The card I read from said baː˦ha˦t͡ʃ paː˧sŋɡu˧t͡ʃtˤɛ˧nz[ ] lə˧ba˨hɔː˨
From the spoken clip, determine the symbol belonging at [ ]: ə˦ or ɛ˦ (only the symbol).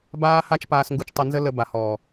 ə˦